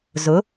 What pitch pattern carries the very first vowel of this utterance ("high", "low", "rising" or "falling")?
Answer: rising